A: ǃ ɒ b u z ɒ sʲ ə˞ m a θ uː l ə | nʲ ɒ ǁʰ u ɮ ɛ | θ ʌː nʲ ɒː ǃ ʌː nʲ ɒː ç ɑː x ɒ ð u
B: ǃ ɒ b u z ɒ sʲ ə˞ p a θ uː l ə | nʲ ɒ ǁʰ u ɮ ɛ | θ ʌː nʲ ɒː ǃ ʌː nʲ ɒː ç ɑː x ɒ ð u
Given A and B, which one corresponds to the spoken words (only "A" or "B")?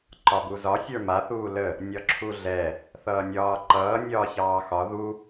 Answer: A